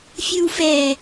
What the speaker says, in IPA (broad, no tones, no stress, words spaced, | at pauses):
fʲɯwfɛ